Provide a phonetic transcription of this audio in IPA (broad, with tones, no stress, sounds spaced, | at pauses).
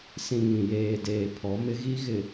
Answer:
s ĩ˨ ŋ ĩ˨ j eː˨ d eː˨ pʰ ɔ˨˦ m ɪ˦ ɣ i˦ ɣ ɪ˨